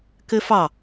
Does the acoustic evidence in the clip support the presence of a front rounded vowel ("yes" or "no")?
no